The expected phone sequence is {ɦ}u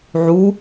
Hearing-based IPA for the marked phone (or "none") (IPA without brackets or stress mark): ʕ